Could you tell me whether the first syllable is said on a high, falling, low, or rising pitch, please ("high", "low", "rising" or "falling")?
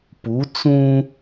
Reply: rising